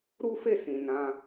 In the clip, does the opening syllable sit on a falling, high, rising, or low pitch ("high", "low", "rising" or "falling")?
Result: high